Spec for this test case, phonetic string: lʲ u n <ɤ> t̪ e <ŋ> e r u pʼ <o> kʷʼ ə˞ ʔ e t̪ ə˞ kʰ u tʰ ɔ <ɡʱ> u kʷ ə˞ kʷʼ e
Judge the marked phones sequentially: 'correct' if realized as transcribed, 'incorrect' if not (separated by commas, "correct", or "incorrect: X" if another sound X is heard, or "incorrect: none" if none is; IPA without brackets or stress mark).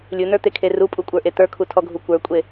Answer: incorrect: ə˞, incorrect: kʰ, incorrect: u, correct